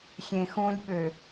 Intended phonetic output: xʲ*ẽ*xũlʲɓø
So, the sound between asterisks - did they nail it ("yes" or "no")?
yes